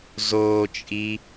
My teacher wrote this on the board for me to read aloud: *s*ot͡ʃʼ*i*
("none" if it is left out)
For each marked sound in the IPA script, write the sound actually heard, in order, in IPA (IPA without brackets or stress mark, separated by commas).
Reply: z, i